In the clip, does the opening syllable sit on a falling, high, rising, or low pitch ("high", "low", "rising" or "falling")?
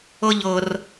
high